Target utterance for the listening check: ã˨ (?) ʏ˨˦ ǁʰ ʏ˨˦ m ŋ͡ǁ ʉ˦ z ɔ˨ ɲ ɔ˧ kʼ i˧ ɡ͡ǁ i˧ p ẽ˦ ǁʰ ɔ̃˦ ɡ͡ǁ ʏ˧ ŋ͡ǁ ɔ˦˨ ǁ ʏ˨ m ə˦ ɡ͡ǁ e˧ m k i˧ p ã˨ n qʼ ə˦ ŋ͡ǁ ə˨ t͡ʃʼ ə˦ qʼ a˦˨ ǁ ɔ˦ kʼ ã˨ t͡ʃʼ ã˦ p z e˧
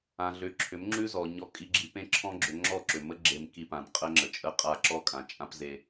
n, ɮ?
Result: ɮ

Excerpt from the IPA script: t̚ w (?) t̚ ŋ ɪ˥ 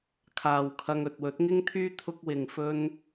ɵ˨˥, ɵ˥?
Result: ɵ˨˥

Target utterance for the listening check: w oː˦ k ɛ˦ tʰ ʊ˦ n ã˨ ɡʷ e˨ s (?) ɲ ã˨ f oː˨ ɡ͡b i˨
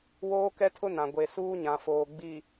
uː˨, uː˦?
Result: uː˦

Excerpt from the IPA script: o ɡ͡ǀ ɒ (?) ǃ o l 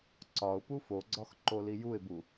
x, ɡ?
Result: x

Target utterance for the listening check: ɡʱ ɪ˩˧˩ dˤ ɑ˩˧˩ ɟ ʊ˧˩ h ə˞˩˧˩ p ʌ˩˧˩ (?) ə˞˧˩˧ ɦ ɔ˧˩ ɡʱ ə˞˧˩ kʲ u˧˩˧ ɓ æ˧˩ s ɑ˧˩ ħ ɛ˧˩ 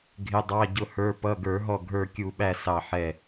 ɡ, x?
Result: ɡ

